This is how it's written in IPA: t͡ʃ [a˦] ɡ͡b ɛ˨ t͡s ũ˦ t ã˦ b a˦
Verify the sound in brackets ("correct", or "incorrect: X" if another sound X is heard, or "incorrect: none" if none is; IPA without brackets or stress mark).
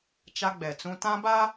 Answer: correct